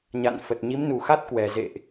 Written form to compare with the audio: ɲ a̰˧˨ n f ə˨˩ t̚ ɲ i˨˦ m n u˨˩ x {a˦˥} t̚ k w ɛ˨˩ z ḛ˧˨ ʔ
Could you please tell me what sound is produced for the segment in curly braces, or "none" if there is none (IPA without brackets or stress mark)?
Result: a˦˥